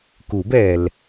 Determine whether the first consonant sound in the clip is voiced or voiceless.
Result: voiceless